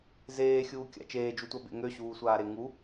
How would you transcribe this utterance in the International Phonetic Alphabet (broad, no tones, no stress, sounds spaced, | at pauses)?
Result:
z eː xʲ uː kʲ a̰ t͡ʃ eː d͡ʒ u tʷ a b ḛ ŋ ø ɕ uː sʷ aː ɾ e ŋ u